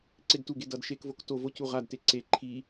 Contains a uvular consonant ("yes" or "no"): yes